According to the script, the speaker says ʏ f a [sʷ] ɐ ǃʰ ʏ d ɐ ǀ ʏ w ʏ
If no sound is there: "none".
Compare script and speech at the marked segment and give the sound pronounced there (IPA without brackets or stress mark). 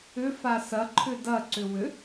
s